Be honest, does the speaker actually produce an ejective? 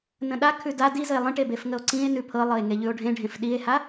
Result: no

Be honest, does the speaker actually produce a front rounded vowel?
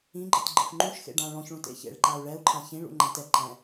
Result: no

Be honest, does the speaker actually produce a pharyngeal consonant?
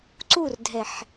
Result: yes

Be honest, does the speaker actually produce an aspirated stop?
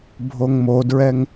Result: no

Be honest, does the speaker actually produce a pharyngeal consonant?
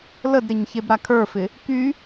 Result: no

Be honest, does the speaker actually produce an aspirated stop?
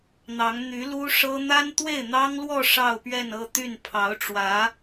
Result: yes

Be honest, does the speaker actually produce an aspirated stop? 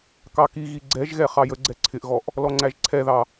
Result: yes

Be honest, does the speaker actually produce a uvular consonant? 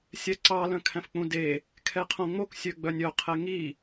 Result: yes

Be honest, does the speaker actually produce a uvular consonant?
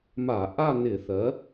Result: no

